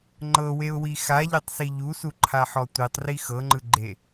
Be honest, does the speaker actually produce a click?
yes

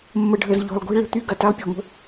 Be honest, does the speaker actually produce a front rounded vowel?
yes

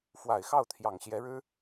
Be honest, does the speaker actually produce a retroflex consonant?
yes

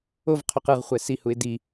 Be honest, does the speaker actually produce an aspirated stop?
yes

